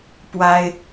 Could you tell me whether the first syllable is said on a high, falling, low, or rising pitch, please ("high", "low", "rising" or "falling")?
high